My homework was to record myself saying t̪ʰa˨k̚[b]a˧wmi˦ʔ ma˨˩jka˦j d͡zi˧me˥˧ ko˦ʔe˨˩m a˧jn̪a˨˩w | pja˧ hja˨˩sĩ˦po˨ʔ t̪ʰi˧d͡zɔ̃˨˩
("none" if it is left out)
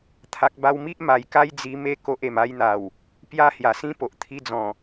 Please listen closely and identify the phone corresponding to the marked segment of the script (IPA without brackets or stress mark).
b